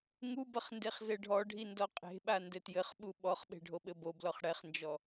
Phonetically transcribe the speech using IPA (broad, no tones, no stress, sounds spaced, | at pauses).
ŋ u b ɐ χ n d e χ z ɘ ɖʱ ɔ ɖʱ i n d ɔ qʼ e̤ ɓ a n d ɘ t j ɘ χ ɓ u ɓ ɔ χ ɓ e̤ ɖʱ o ɓ ɘ b o b l ɔ χ ɽ ɛ χ n d͡ʒ ɔ